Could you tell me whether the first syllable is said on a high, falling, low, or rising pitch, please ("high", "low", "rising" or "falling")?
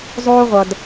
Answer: high